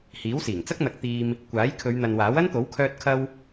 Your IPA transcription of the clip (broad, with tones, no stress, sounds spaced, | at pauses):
h iː˨˥ w s iː˨˩ ŋ t͡s ɐ˥ k̚ n̪ ɐ˨˥ k̚ t̪ iː˧ m | kʷ aː˨˥ j kʰ ɵ˨˧ ɥ n̪ ɐ˨ n w aː˨˥ w ɐ˥ n t̪ o˨˥ w kʰ œː˧ t̚ kʰ ɐ˧ w